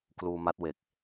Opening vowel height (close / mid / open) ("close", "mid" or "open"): close